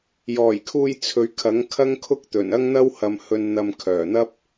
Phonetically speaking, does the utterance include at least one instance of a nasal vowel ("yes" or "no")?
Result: no